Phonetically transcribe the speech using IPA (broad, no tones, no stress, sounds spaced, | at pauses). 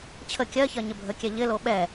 t͡ɕʰ ə kʲ ɜ ç ɜ ɲ ɪ bʱ ə kʲ ɛ ʎ ɪ l o ɓ ɛ